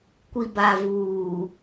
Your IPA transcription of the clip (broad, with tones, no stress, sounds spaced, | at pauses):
kʷ i˨ b a˨ v uː˨